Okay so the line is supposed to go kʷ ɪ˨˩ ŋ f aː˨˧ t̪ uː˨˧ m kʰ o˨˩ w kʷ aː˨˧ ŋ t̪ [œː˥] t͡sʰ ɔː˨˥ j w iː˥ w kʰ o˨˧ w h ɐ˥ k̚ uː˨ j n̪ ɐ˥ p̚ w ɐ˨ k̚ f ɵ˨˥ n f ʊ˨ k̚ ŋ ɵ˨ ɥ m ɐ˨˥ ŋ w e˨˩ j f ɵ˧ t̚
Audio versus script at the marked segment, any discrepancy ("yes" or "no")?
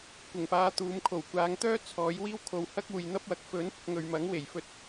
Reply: no